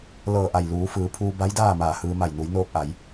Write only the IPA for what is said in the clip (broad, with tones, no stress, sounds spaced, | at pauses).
l ɤː˧˩ ʔ a˧˩ j l uː˩˧ f ɯː˩˧ pʰ uː˧ b a˧˥ j d aː˥˨ m aː˧˩ h ɯː˧ m a˧˩ j n u˩˧ j n oː˧ k̚ ʔ a˩˧ j